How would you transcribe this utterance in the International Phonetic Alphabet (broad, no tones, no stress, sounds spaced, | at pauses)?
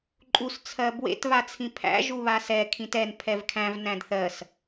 ǃʼ u s t͡sʰ ɜ b w ḛ t β a t͡sʰ ĩ pʰ æ̰ ʒ u β a s ɛ kʰ ĩ t ɛ n pʰ ɛ v kʰ æ̃ v n æ̃ d θ ɜ s